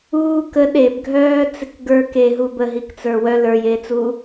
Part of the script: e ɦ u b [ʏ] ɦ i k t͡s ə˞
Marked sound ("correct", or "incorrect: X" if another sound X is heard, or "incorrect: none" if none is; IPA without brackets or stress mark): incorrect: ə